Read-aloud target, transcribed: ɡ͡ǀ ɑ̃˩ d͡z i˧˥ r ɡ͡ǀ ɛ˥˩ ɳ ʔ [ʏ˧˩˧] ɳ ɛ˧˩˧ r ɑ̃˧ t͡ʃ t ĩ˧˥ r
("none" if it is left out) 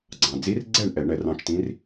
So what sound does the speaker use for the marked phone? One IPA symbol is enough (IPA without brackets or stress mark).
ɛ˧˩˧